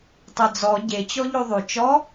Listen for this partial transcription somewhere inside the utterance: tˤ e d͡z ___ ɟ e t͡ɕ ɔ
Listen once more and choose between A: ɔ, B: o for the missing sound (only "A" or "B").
A